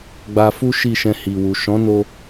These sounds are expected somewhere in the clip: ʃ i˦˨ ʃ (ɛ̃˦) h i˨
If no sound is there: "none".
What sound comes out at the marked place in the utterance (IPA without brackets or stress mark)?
ɛ̃˧